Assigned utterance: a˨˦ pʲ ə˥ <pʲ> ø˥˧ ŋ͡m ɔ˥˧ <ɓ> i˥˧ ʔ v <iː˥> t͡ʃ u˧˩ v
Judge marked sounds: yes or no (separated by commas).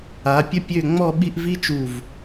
yes, yes, no